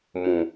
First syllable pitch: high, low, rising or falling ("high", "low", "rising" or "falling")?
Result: low